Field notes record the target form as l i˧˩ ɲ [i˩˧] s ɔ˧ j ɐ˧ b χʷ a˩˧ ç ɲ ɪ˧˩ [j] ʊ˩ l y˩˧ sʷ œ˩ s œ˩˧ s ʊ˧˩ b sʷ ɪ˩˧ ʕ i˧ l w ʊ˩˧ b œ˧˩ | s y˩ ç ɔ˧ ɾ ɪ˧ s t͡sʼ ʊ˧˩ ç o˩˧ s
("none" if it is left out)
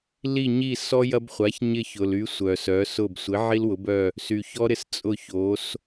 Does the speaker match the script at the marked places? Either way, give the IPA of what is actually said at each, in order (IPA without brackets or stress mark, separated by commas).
i˧˩, ç